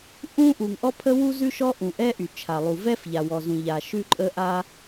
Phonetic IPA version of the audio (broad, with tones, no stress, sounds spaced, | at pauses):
ʔ ũ˥ ʔ u˩ ŋ ʔ ɔ˥ pʰ ə˥ w u˥ z ʉ˥ ʃ ɔ˥ ʔ ũ˩ ʔ ɛ˥ ʔ y˩ t͡ʃʰ a˩ lˠ u˩ v ɛ˥ f ʎ a˩ w ɔ˩ z ũ˩ ʎ a˩ ʃ ʉ˥ ǃʼ ə˥ ʔ a˥